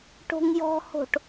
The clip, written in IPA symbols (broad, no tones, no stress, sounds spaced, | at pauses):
ʈ o̤ ŋ j ɔ̤ h o̤ ʈ